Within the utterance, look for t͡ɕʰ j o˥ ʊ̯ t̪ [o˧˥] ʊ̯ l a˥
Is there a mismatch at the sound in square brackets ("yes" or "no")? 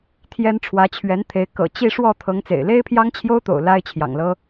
yes